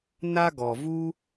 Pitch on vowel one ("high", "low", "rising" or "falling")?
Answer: high